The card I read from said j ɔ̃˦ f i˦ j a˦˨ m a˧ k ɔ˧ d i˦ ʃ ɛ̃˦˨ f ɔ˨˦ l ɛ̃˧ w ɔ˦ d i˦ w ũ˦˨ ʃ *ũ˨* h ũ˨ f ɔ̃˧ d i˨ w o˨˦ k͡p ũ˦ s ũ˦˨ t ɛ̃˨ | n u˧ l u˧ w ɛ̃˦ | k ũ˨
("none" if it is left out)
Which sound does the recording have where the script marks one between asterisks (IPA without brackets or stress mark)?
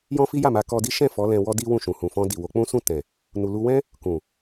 ũ˨